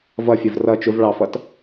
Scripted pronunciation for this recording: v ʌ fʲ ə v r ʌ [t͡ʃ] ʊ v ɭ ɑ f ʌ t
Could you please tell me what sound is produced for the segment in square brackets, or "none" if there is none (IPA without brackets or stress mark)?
t͡ʃ